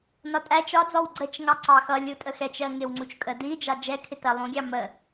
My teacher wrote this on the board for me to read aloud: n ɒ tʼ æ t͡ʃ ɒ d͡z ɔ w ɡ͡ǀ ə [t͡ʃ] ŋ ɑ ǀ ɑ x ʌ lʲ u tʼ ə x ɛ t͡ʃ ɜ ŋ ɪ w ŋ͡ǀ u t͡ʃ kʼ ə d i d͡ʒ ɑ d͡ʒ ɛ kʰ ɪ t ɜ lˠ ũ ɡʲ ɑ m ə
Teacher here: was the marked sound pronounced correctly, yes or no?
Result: yes